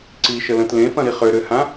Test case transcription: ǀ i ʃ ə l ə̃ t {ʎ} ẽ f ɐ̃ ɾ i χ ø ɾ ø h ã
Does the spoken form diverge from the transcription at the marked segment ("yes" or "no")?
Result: yes